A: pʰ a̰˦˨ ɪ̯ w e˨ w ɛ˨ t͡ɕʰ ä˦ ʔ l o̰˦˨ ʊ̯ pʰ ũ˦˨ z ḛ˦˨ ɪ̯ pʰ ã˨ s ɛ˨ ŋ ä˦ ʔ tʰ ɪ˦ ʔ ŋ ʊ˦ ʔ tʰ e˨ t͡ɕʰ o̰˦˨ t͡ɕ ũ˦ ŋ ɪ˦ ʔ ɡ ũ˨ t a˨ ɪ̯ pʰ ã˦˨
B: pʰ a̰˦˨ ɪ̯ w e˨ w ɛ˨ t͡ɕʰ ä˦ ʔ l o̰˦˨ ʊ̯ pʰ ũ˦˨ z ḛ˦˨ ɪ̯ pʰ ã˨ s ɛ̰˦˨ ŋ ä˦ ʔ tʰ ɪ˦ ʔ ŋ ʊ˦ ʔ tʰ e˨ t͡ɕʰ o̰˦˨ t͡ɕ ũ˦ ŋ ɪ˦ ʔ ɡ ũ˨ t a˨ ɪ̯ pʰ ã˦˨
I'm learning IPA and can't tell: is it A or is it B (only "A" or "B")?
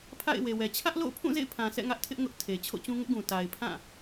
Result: B